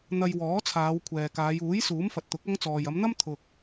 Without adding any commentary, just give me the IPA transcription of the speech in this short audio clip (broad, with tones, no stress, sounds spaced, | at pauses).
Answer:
n̪ ɐ˧ j w ɔː˨˥ t͡sʰ aː˨˧ w kʷʰ ɛː˨ k aː˨˧ j uː˨˥ j s uː˨˥ m f ɐ˨ t̚ t̪ ʊ˨˥ k̚ ɐ˥ ŋ t͡s ɔː˨ j ɐ˨˧ m n̪ ɐ˥ m t̪ʰ ʊ˨ k̚